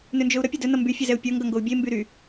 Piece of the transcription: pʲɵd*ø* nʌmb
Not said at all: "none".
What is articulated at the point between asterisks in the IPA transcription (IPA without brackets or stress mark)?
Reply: ɵ